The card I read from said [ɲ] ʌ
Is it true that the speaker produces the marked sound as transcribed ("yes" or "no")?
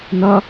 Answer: no